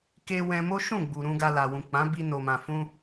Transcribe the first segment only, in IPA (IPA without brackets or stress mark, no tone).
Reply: k